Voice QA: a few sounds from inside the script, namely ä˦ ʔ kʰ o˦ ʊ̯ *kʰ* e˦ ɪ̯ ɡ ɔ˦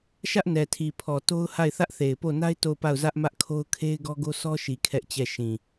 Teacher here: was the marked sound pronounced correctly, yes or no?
yes